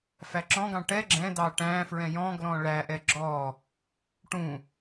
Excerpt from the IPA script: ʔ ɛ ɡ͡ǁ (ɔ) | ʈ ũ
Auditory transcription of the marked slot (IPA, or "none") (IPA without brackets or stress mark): ɔ